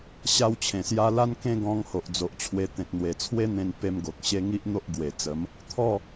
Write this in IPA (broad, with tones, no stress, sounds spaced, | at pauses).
ɕ a˦ w t͡ɕʰ ẽ˨˩ s j a˦ l a˦ n k ẽ˥˧ ɡ ɔ̃˧ ŋ h o˨ ʔ d͡z o˨ ʔ t͡ɕʰ w e˧ t̪ ẽ˨ t̚ n̪ w e˨˩ t͡sʰ w e˦ n̪ ẽ˧ n p e˧ m ɡ o˨ k̚ ɕ e˦ ŋ i˦ ʔ n̪ o˦ ʔ ɡ w e˨˩ t͡s ə˨˦ m | t̪ʰ ɔ˥˧